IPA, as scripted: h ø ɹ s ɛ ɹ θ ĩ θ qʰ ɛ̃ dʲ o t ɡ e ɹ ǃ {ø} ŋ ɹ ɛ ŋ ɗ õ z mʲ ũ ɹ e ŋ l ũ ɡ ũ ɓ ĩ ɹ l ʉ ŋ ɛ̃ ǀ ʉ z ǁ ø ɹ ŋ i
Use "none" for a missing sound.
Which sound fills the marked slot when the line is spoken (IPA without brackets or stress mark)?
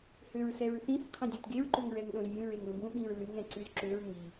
ø